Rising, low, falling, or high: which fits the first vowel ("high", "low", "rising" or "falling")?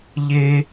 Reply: high